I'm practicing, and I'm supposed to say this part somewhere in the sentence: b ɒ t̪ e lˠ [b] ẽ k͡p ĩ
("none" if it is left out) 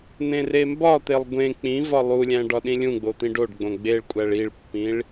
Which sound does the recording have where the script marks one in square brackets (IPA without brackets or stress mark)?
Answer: ɡʷ